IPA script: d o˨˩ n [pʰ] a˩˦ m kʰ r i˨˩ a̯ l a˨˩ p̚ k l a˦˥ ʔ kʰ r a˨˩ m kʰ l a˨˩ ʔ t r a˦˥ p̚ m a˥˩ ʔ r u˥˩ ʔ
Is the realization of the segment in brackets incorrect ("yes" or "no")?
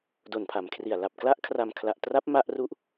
no